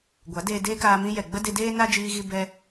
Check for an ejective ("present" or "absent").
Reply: absent